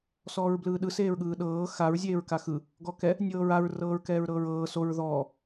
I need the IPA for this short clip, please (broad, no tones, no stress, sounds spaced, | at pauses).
s ɔː ɹ b l ɯː ɗ ɯ s eː ɹ ɠ ɯː ɗ ɤː x a ɹ zʲ eː ɹ k a x ɯ | ɡ ɔ k ɛ | nʲ ɤː ɹ a ɹ r ɤː ɹ k ɛː ɹ ɾ ɤː ɹ ɤː s o ɹ ð ɔː